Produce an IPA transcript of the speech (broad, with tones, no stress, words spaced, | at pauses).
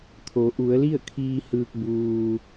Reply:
t̪ʰo˩˧ ʔu˩˧ə̯li˥˨ə̯kʰiː˧ hɯː˧k̚ buː˩